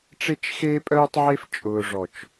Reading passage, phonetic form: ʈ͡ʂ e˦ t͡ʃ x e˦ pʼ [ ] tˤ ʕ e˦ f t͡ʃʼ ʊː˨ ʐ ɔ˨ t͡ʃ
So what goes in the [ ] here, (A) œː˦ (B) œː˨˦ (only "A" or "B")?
A